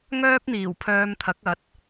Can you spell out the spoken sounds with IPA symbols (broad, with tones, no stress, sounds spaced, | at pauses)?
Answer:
ŋ œː˥ p̚ n̪ iː˨˩ w pʰ œː˧ m t̪ʰ ɐ˨˥ k̚ ɐ˨˥ t̚